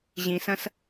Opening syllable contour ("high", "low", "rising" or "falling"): low